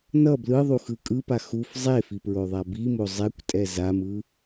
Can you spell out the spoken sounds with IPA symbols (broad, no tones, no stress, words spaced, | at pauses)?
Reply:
nʌ blɯðˤuxɯ kʼɯpa xuf zˤefipɹoðˤa bimo zˤɛkʷtʼɛ zamɯ